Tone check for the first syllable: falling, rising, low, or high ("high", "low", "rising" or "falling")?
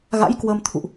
rising